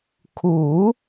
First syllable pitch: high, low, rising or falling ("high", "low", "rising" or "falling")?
rising